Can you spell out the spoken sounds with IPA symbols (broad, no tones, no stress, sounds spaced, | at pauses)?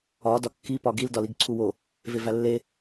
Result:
ɒ d ɒ kː i p ɒ ɡ i l d ɒ l i ɡ ǀʰ u w o | v e v æ lː e